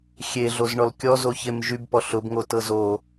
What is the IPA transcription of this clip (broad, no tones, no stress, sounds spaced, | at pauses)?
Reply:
xʲ e ɮ o z ɳ ɔ l kʲ ɔ z o ç e m ʒ y b p ɔ ɬ ʊ b ŋ o t ɤ z o